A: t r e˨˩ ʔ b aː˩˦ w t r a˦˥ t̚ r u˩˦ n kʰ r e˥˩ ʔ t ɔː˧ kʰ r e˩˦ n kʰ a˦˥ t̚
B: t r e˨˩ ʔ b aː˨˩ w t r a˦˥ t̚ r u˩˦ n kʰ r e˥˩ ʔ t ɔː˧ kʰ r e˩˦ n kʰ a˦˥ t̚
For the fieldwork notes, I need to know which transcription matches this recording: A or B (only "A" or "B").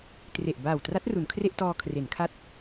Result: B